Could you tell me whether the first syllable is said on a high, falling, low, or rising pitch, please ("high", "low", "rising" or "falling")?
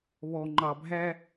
low